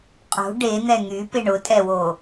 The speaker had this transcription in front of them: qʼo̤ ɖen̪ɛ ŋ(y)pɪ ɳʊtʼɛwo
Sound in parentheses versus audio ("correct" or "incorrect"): correct